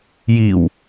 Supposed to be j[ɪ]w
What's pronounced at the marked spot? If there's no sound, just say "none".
i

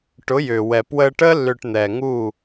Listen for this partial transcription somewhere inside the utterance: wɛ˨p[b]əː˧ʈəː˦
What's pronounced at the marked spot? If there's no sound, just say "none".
w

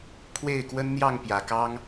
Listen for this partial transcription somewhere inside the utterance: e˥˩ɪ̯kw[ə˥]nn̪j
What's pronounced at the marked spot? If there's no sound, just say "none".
ə˥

